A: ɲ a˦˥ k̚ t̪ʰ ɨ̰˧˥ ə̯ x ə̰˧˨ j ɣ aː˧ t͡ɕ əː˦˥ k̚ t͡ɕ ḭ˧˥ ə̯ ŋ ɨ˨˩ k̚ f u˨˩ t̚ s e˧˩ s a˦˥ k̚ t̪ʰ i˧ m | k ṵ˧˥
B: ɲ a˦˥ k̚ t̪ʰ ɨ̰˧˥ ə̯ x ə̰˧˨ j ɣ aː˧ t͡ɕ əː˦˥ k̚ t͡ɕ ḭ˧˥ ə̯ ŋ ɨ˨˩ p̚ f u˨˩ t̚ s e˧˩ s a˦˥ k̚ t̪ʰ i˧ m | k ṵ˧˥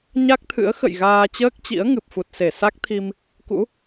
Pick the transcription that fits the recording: B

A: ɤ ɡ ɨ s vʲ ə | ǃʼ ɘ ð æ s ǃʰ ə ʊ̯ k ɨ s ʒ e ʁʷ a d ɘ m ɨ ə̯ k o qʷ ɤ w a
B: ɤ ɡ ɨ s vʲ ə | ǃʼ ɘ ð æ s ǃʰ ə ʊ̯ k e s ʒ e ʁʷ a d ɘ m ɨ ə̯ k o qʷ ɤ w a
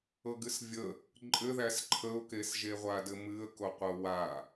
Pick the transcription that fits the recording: B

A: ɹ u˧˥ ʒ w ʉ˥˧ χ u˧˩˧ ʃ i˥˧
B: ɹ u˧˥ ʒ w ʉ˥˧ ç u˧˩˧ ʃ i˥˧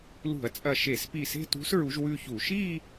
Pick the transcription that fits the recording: B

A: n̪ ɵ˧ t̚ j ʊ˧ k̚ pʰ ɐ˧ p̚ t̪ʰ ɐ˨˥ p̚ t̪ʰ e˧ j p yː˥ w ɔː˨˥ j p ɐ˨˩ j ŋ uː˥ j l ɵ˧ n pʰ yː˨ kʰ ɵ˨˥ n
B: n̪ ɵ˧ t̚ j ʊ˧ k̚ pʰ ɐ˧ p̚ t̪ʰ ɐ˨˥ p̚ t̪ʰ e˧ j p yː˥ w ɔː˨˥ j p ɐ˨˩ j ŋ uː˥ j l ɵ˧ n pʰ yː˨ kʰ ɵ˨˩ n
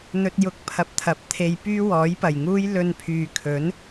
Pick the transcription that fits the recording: A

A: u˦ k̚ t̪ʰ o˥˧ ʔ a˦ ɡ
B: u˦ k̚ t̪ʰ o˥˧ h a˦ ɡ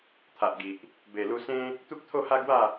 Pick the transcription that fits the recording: B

